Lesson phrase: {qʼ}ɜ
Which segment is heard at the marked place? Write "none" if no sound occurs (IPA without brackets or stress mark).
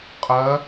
qʼ